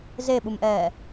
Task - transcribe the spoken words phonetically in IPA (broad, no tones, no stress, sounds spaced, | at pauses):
z e ɓ u m ʔ ɛː